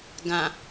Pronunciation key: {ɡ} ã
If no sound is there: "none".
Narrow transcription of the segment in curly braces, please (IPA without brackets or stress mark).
ɡ